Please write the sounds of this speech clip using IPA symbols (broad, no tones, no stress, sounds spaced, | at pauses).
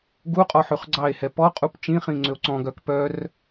ɡ u qʼ ɔ ħ ʉ χ ɡ͡ǀ ɑ e̯ h ɛ p ɔ qʼ u p t͡ʃ ĩ χ ĩ ŋ͡ǀ ø o̯ ǀ ɔ̃ ɡ œ k p œ r